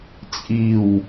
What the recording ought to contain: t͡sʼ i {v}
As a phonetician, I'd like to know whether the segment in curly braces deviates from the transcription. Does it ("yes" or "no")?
yes